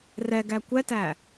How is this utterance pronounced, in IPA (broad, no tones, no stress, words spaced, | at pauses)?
rɛɡæ kʷɛtæ